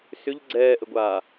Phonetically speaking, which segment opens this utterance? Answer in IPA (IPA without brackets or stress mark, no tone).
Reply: s